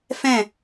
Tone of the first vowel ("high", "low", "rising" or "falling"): falling